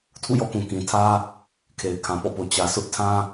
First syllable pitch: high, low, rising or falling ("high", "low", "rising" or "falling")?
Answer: falling